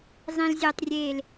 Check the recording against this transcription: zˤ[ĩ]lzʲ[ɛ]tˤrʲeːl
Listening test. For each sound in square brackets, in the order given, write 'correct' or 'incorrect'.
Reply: correct, correct

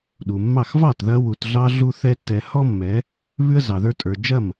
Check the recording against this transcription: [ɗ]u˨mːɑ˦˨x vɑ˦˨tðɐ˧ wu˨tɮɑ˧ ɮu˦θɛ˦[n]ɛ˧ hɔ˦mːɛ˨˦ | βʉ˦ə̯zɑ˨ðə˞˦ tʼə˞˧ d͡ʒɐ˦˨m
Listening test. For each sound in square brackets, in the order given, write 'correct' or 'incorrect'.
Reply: correct, incorrect: tː

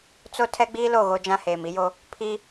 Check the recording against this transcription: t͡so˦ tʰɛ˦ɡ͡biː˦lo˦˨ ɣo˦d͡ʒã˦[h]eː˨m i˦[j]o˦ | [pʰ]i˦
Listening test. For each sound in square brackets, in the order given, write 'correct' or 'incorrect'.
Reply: correct, correct, correct

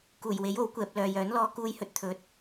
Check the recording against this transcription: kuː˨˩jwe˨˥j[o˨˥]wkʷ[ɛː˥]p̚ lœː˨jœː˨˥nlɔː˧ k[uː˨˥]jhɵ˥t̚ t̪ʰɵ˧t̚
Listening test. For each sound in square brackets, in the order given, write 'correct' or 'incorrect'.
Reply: correct, incorrect: ɛː˨, incorrect: uː˥

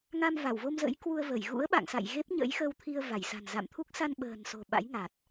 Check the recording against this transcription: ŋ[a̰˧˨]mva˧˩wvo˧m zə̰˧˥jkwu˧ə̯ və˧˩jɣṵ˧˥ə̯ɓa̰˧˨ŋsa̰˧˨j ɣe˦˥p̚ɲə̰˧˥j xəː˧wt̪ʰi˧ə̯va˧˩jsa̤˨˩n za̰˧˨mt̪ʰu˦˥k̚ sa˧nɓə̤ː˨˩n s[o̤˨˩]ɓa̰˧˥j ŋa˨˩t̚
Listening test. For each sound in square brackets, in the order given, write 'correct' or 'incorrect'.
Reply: incorrect: a˧, correct

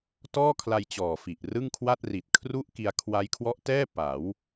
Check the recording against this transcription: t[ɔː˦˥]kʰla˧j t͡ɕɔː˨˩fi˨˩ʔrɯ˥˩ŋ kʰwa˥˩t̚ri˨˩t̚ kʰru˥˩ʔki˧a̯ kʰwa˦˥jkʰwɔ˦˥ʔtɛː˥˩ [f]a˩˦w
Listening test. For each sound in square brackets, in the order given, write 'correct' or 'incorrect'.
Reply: incorrect: ɔː˥˩, incorrect: p

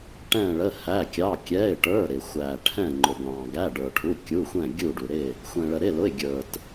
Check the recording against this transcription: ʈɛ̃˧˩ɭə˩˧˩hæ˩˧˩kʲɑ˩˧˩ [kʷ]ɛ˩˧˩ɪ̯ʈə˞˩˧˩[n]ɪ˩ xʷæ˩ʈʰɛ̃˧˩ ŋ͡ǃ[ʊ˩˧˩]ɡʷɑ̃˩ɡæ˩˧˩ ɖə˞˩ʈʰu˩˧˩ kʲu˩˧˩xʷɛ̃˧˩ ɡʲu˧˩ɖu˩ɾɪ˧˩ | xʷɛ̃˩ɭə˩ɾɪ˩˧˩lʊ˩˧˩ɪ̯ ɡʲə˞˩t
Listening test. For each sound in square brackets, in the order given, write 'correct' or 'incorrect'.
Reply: incorrect: kʲ, incorrect: ɾ, incorrect: ʊ˩

